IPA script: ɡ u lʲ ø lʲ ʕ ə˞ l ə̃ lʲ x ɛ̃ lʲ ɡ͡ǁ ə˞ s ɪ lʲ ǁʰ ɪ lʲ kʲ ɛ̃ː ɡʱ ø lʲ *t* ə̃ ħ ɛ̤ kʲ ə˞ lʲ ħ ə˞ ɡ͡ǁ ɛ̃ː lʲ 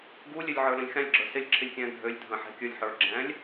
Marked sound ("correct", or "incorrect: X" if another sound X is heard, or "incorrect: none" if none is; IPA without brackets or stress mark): incorrect: dʱ